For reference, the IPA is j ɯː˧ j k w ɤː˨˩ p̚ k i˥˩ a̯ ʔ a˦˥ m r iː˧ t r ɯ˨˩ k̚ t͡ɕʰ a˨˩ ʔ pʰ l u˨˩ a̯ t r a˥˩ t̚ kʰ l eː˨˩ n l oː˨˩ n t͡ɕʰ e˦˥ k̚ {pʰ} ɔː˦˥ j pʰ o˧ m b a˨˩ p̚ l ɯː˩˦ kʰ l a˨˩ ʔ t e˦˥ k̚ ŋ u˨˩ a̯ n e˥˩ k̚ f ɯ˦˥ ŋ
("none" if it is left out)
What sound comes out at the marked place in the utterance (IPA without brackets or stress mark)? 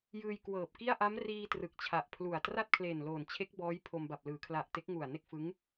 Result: b